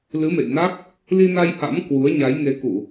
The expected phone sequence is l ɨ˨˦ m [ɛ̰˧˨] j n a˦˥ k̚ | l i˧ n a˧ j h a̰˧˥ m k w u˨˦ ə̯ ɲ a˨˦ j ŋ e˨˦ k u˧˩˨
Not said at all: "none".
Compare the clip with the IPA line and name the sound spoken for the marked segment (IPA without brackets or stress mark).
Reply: ḛ˧˨